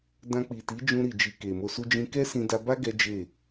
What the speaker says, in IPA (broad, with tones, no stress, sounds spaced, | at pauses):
d ã˧ k͡p i˨ t i˨˦ d͡ʒ ũ˧ ɾ i˨ d͡ʒ i˨ k e˨ m o˧ s u˦ d͡ʒ ĩ˧ k ɛ˦ s ĩ˧ d a˧ b a˦ ɡ ɛ˦ d͡ʒ e˦˨